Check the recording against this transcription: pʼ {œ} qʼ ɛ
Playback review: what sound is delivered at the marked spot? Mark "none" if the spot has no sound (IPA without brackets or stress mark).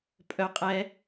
œ